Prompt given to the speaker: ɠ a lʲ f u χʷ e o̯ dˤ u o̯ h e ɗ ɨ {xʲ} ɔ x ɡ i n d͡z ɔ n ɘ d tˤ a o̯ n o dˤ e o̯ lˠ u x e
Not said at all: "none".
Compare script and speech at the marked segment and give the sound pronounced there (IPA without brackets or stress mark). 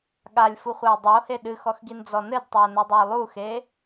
x